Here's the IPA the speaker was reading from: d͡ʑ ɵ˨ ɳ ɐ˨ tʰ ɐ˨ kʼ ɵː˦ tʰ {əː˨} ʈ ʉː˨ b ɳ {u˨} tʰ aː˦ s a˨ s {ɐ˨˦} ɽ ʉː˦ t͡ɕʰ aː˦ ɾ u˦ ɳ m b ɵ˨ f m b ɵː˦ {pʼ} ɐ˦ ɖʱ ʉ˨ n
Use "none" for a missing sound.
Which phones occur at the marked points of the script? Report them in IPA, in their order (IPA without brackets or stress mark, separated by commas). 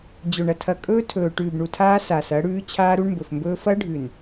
ɵː˨, u˨, ɐ˨˦, f